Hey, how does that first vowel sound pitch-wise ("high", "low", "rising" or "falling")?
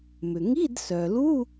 low